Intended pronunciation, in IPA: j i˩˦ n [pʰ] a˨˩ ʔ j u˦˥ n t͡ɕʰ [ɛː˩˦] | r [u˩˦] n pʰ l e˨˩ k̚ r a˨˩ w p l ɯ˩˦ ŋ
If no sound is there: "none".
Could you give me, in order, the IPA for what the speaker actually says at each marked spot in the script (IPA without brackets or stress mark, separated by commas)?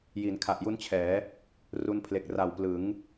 kʰ, ɛː˩˦, u˧